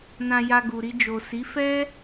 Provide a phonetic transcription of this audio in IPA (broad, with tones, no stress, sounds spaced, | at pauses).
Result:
n ã˧ j a˧ ɡ u˨ ɾ i˧ d͡ʒ o˨ s i˨˦ f ɛ˦